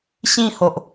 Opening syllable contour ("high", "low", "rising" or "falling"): falling